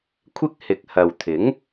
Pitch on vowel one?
high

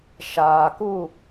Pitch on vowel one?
low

